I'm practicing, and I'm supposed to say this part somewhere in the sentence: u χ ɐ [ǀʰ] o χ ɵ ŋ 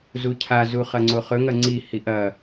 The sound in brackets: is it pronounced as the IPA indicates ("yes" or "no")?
no